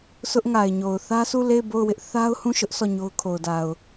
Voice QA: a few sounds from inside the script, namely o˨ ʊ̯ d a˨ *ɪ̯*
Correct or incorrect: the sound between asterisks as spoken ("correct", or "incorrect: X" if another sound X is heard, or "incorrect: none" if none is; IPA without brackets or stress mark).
incorrect: ʊ̯